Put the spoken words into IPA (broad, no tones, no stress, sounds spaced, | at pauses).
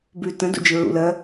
b ʉ t ə̃ d ṵ d͡ʒ ɪ ɹ ṵ l ɜ